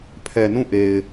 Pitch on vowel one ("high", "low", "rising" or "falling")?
low